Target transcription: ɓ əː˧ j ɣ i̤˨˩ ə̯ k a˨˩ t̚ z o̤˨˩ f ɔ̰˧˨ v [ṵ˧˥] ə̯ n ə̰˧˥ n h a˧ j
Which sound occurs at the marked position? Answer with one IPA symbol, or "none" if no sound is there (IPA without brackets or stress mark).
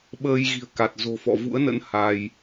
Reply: ṵ˧˥